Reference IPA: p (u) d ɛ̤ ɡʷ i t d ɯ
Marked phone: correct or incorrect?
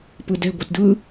incorrect: ɯ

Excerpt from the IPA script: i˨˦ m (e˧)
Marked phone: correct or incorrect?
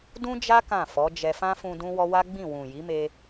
correct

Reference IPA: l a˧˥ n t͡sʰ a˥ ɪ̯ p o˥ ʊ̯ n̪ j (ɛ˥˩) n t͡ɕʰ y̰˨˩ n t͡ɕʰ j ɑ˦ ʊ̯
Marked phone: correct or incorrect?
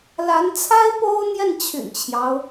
correct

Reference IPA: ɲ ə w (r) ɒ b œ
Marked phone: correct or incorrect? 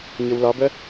incorrect: l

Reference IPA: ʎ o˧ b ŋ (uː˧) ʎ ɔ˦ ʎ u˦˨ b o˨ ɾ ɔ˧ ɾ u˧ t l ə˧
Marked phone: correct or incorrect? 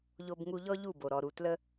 incorrect: u˧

